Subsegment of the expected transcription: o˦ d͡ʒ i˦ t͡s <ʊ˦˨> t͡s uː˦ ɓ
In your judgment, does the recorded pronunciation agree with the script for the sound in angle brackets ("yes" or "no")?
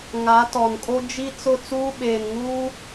yes